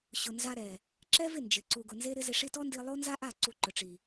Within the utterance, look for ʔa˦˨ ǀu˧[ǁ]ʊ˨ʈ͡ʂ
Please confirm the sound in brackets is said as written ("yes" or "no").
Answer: no